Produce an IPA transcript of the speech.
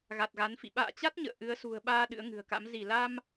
ɣ a˨˩ t̚ ɣ a˨˦ n f ḭ˧˨ ɓ a̰ː˧˨ t͡ɕ a˦˥ t̚ ɲ ə̰ː˧˨ ʔ ɨ˨˦ ə̯ s ṳ˨˩ ə̯ ɓ aː˧ ɗ ɨ̰˧˥ ə̯ ŋ ɨ̤˨˩ ə̯ k a̰˧˥ m z i˧˩ l a˧ m

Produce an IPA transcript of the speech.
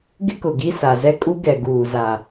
ɡ ɪ˦ k ʊ˨ ɡ i˦ s a˨ z ɛ˦ kʼ u˦ ɡ ɛ˨ ɡ uː˨ z a˨

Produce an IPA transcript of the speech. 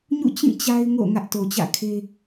ɲ ṵ˦˨ t͡ɕ ĩ˦˨ t͡ɕ a˦ ɪ̯ ŋ o̰˦˨ ŋ ä˦ ʔ t o˨ t͡ɕ ä̰˦˨ kʰ e˦

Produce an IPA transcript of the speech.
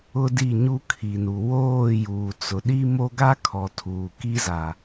ʊ˦ d i˦˨ ɲ u˦ kʰ i˨ n u˨ w oː˦˨ j uː˨ t͡s ʊ˨ ɗ i˦ m o˦ ɡ a˦ kʰ ɔ˨ tʰ uː˨ k i˦ z a˨

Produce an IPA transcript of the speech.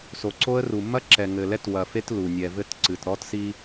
s o˨ ǀ o˦ ə̯ r u˨ mː ɐ˦ ǁ ɛ˨ ŋ ɘ˨ l ɛ˦ t w ɐ˨ f e˦ t l u˨ nʲ ɛ˨ v ɘ˦ t ǀ ɨ˨ t ɾ ɔ˦ t s i˦

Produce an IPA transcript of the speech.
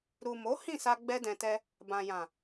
ɾ u˨ m o˨˦ h ĩ˦˨ s a˧ ɡ͡b ɛ˦ d ɛ̃˧ t ɛ˦ | b ã˨ j ã˨

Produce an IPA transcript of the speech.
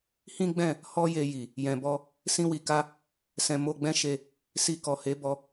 h ĩ˦ ɡ͡b ɛ̃˦˨ | h ɔ˦ j e˧ j i˨ | j ɛ̃˨ b ɔ˧ | s ĩ˦ w i˧ k a˦ | s ɛ̃˧ m o˧ ɡ͡b ɛ̃˦ ʃ e˧ | s i˧ k ɔ˨ h e˨˦ b ɔ˧

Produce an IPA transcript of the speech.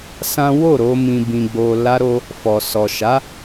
s ã˦ w o˦˨ ɾ o˧ m ĩ˨ b ĩ˨ ɡ͡b o˨ l a˧ ɾ o˧ | f ɔ˨ s ɔ˨ ʃ a˨˦

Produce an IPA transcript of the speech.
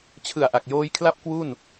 t͡ɕʰ ɯ˨˩ a̯ ʔ a˨˩ k̚ j oː˧ j kʰ l a˦˥ p̚ k w u˥˩ n

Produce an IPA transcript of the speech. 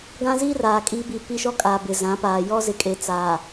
ɡ ã˦ z iː˦ r aː˨ kʼ iː˦ b i˦˨ p i˦ ʃ ɔ˦ kʼ aː˨ b ɪ˨ z ã˨˦ p aː˨ j ɔ˦ z ɪ˨ kʼ e˨ t͡s aː˨

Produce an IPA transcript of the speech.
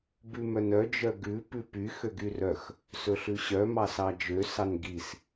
b ʉ m œ n œ d͡ʒ œ ɡ ʉ p ʉ p y x ø ɡ y r œ x | s ɵ ɬ ʉ ɕ œ m ɑ s ɑ d͡ʒ ø s ɑ n ɡ i s

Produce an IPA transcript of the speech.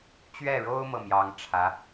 t͡ɕ ɥ ɛ˥˩ ɻ o˥ ʊ̯ m ɤ˥˩ m j ɑ˧˥ ŋ ʈ͡ʂʰ ä˧˥

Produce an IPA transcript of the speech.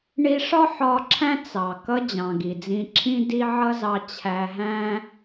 ɳ i˧ ʂ ɒ˦ ħ ɒ˧ ǁʰ æ̃˦ t͡s ɑ˨ k ʌ˧ d͡ʑ ɑ̃˨ ɡ i˨ d͡z ĩ˧ ǁʰ ĩ˦ d i˧ ʕ ʌ˦ z ɑ˧ t͡ɕʰ æ˧ ɦ æ̃˦

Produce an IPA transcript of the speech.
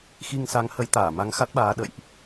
x i˧ ŋ s a˨˦ ŋ h ə˨˦ j t̪ aː˧˩ m a˧ ŋ x a˦˥ t̚ ɓ aː˨˦ ɗ ə̰˧˨ j ʔ

